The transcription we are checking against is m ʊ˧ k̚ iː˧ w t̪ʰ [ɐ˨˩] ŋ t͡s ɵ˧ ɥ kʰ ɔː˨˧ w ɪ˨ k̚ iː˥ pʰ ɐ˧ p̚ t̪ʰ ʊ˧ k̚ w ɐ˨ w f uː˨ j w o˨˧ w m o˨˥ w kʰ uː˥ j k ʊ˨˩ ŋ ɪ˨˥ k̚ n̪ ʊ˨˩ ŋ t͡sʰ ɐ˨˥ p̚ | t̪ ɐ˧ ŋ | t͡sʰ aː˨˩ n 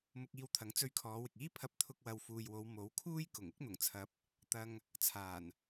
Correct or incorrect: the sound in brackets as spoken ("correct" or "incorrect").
incorrect